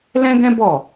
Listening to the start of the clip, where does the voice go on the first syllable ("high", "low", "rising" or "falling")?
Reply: high